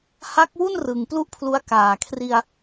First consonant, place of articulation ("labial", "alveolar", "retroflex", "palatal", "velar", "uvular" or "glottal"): glottal